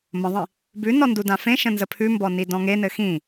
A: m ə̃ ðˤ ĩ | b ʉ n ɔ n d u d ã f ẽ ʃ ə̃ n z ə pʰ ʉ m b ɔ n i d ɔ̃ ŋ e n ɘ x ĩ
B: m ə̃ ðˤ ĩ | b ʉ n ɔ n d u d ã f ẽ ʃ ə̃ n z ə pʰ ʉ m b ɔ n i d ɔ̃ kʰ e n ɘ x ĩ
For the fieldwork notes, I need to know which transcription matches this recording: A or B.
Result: A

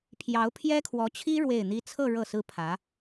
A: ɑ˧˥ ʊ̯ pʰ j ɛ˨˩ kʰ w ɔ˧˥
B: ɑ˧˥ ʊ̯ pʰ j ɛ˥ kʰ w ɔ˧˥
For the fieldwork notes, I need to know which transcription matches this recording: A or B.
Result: B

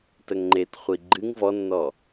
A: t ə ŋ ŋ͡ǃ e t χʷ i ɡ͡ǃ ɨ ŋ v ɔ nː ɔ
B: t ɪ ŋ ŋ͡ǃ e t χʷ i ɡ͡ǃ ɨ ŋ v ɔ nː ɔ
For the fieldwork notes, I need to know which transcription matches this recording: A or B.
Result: A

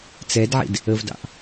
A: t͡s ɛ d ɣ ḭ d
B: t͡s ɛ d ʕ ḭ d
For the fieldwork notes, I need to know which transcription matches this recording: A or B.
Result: B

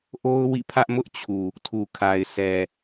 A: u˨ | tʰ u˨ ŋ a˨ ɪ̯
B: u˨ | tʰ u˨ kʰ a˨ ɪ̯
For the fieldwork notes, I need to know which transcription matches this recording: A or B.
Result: B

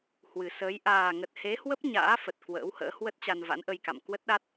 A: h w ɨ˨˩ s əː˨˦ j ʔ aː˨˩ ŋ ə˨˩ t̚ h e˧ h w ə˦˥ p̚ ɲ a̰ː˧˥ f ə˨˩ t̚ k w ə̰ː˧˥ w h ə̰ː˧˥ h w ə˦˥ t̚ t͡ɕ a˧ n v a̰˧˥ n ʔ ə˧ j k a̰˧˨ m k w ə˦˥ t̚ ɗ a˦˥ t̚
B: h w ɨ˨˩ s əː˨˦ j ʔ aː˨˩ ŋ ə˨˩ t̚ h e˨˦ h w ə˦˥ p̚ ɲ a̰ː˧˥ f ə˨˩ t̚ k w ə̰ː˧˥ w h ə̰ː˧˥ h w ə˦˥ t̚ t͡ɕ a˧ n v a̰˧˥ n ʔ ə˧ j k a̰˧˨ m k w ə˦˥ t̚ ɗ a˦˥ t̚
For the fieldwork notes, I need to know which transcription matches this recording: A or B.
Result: B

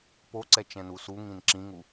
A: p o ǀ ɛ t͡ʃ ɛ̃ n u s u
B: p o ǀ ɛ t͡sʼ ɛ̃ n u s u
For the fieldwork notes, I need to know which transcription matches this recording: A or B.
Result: A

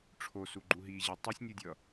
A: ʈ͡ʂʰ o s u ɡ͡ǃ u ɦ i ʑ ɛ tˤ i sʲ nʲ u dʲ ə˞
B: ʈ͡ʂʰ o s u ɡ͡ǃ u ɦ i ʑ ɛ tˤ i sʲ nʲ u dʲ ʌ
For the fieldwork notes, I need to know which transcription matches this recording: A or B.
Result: B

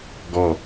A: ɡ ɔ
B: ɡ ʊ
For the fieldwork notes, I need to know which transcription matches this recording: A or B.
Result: A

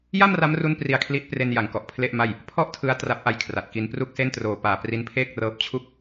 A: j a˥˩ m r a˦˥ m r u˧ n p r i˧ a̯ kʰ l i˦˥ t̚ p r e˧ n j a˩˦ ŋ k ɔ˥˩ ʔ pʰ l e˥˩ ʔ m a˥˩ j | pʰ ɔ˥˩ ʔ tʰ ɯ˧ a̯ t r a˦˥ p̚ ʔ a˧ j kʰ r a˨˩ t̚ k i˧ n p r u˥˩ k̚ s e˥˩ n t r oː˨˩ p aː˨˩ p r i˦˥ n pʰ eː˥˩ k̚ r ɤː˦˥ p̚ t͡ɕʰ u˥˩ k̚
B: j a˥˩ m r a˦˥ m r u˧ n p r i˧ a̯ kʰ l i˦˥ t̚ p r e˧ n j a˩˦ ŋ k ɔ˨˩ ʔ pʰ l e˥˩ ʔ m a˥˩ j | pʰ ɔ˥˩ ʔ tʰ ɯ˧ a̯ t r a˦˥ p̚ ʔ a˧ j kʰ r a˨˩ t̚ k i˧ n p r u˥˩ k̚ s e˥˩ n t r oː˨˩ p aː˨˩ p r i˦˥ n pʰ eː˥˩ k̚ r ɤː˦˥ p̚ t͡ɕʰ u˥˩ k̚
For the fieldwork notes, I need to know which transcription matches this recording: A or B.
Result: B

